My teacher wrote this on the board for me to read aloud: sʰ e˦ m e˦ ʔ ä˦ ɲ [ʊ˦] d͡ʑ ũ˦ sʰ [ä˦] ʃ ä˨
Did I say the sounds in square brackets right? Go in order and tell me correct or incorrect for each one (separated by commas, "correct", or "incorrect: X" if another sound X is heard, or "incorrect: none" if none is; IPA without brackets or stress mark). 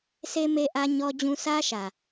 incorrect: ɔ˦, correct